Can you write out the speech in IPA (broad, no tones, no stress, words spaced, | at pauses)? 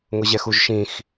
ŋʊʑɛxuʒʃĩx